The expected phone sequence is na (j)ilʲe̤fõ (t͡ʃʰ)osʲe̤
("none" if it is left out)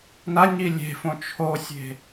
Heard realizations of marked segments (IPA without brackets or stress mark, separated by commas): ɲ, t͡ʃʰ